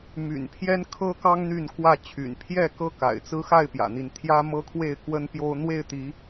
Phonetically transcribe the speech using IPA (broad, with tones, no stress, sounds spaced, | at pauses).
m y̰˨˩ n pʰ j ɛ˦ n kʰ ɤ˦ k ɑ˦ ŋ n̪ y˥˨ n k w ä˥˨ t͡ɕʰ y̰˨˩ n pʰ j ɛ˥˨ k ɤ˦ k a̰˨˩ ɪ̯ t͡s ɹ̩˦ x a˥˨ ɪ̯ p j ä̰˨˩ n̪ i˥˨ n t̪ʰ j ä˦ m ɤ˦ kʰ w e˥˨ ɪ̯ k w ə˦ n p j o˦ ʊ̯ n̪ w e˥˨ ɪ̯ t̪ i˨˦